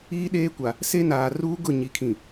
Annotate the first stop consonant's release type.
implosive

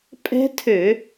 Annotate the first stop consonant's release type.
ejective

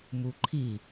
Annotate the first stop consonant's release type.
click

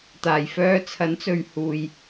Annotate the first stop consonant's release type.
plain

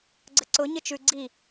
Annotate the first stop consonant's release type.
click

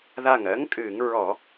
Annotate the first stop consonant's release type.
ejective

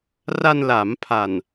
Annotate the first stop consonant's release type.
aspirated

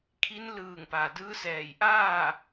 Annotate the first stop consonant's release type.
aspirated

